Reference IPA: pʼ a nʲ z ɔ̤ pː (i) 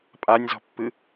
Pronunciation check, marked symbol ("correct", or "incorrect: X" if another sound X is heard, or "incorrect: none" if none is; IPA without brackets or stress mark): incorrect: ɨ